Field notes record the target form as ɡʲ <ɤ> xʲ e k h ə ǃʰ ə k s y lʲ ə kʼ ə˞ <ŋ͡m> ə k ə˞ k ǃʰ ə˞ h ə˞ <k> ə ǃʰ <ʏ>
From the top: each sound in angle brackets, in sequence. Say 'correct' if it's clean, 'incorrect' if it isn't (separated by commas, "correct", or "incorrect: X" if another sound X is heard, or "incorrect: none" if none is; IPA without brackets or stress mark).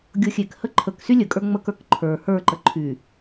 correct, correct, incorrect: ǃ, incorrect: y